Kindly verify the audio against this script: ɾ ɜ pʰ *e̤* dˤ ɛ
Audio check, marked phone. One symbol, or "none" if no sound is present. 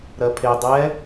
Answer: e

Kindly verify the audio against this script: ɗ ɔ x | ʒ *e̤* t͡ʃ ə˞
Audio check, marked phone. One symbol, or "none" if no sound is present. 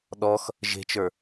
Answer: e̤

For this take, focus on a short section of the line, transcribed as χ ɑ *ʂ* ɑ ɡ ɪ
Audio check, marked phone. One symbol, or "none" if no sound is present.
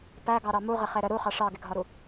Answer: ʂ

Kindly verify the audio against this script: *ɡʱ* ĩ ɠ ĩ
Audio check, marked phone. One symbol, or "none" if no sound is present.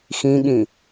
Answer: x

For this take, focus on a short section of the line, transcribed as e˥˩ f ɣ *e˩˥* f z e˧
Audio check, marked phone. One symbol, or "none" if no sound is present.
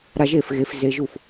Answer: e˩˥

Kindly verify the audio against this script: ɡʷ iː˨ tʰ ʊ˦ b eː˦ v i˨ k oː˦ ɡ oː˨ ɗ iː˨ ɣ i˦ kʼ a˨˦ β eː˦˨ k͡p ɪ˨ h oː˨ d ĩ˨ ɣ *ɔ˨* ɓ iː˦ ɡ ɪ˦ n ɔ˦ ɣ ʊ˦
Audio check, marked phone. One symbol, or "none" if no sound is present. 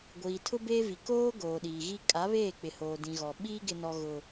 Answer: ɔ˨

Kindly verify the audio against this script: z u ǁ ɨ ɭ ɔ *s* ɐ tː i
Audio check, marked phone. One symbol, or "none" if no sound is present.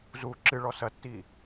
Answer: s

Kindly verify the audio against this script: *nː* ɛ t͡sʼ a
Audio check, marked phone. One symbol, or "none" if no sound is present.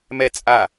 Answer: m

